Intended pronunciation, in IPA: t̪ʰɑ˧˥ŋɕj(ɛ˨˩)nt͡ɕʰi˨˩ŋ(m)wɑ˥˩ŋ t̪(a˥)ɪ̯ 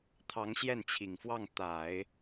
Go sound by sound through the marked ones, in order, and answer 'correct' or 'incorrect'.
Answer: incorrect: ɛ˥˩, incorrect: f, incorrect: a˨˩˦

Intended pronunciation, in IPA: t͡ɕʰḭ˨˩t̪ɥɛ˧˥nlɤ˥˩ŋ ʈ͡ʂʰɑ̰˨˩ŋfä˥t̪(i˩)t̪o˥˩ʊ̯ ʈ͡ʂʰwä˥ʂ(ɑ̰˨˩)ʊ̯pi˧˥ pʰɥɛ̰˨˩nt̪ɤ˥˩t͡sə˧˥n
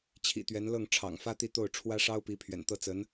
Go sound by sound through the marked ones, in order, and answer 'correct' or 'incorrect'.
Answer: incorrect: i˥˧, incorrect: ɑ˥

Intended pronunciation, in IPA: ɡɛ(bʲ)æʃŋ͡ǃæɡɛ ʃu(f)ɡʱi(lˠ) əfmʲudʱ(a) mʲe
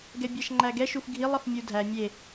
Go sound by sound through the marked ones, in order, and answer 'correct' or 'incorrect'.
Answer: correct, correct, correct, incorrect: æ

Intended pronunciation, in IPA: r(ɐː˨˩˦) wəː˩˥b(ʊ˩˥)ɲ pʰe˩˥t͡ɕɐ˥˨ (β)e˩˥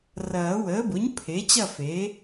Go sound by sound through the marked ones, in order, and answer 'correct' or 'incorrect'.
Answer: correct, correct, incorrect: f

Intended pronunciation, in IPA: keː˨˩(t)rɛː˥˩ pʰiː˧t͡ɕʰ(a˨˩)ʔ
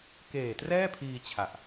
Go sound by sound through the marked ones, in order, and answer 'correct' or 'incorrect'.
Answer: correct, correct

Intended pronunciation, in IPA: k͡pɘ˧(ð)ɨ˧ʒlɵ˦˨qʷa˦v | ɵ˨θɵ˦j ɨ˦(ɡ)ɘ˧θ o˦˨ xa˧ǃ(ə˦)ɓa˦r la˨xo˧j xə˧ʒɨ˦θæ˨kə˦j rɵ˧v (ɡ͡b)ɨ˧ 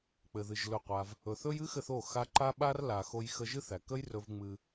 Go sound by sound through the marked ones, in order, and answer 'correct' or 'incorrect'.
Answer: correct, incorrect: x, incorrect: a˦, incorrect: ŋ͡m

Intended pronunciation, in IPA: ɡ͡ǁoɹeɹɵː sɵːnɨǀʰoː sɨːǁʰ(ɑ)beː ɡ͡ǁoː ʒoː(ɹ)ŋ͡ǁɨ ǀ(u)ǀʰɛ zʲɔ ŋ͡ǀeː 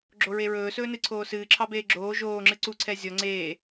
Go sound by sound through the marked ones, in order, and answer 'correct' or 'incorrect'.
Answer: correct, incorrect: none, correct

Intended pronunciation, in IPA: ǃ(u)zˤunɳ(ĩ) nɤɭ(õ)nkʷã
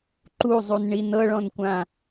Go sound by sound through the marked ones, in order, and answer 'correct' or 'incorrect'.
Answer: correct, incorrect: i, incorrect: ɔ̃

